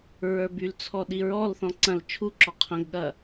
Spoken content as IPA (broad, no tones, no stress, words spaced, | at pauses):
ɹə˞bylt͡sʰɔ ɗiɹɔlθɔ̃ ǀɐ̃l t͡ʃʰuǁɔ qʰɐ̃ɡɠɐ